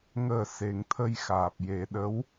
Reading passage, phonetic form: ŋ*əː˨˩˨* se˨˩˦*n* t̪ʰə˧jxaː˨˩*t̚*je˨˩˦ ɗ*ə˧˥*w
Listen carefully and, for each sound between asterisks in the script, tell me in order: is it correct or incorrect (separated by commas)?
incorrect, incorrect, incorrect, correct